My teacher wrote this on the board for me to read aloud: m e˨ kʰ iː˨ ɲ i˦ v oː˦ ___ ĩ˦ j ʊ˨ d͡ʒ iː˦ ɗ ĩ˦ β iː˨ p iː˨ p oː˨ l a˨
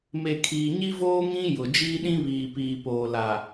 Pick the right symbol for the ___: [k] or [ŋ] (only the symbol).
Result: ŋ